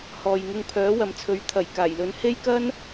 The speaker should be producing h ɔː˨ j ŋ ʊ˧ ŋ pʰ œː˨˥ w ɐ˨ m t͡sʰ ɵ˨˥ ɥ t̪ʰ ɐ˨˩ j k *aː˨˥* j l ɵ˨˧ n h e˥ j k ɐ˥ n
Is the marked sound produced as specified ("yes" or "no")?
no